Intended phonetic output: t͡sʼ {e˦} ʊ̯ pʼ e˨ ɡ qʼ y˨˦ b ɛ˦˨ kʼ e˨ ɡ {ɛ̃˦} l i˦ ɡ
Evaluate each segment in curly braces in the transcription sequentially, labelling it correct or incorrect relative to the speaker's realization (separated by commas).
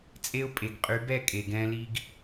correct, correct